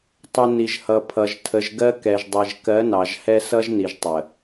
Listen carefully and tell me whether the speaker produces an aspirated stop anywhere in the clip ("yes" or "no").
yes